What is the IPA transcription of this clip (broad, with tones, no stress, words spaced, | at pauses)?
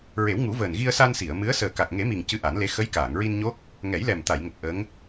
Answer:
ɹe˨˩˦wŋu˨˩˦vəː˨˩n ɣi˧ə̯sa˧nsi˨˩˨ə̯mɨ˧˥ə̯ səː˨˩ka˨˩k̚ŋe˨˩˦mi˨˩ŋ cɨ˧ʔa˨˩˦nle˧˥ xə˧˥jkaː˨˩˨ŋɹi˧nɲo˦˥k̚ | ŋɛ˨˩˦jlɛ˨˩mt̪a˨˩˨jŋə˨˩k̚ ʔə˧˥ŋ